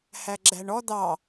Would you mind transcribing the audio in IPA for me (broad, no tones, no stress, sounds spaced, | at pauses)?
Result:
h æ ɡ͡ǁ æ ɳ ɔ d̪ ɑ